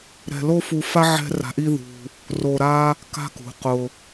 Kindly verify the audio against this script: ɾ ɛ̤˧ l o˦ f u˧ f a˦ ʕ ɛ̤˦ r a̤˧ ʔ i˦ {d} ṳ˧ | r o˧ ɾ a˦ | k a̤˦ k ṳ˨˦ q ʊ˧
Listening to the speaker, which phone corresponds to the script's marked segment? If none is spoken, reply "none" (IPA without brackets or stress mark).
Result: ð